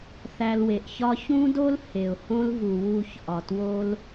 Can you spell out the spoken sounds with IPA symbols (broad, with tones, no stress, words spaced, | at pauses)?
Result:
θæ˧lwe˨ʔçɒ˦ çũ˦do˦l he˨ʊ̯hõ˦l vu˨wu˦˨çʔɒ˨two˦l